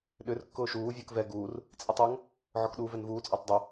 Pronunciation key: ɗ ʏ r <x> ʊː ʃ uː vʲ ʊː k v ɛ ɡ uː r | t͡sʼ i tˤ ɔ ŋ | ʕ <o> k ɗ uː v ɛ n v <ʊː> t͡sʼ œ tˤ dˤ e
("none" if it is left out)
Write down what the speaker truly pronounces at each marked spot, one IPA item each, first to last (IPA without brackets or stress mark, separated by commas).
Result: kː, ɔ, uː